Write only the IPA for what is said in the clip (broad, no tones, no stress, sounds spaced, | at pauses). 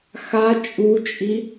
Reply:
x a t͡ʃʼ u t͡ʃʼ i